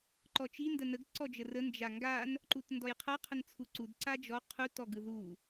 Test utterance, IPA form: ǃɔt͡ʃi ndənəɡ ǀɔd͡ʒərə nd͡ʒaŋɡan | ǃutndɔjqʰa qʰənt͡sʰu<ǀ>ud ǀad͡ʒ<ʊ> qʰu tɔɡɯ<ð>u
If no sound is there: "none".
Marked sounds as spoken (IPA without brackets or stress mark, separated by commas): ǀ, ɔ, ð